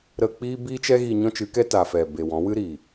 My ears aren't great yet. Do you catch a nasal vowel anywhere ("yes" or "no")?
yes